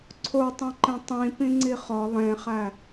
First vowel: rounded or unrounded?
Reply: rounded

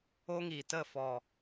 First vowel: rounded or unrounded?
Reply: rounded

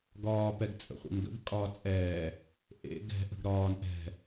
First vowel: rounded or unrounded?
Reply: rounded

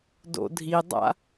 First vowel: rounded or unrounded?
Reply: rounded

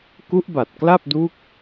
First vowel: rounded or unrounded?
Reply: rounded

